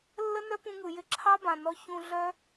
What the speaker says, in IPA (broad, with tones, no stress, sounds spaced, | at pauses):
lː ə˦ n œ˦ p ũ˧ ŋ ɯ˨ j ɪ˧ ǁʰ ɑ˦ b ã˨ n ɔ˧ ç ũ˧ ɮ œ˦